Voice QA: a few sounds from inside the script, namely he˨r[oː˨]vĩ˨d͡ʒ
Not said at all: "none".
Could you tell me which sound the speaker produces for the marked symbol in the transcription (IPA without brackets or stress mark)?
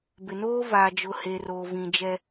oː˨